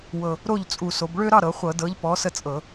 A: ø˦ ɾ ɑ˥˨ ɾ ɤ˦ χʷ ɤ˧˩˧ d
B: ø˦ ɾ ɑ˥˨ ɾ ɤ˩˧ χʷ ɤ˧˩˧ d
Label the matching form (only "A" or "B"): B